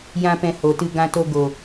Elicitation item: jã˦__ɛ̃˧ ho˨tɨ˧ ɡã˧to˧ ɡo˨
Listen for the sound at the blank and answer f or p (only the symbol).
p